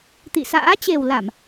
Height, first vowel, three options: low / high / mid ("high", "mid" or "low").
high